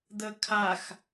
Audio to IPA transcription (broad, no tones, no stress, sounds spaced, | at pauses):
d̪ ə kʰ a x